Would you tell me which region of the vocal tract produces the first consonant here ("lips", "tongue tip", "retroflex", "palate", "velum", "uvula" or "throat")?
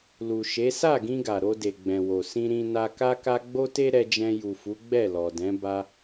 tongue tip